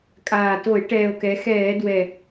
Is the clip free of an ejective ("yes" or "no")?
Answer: no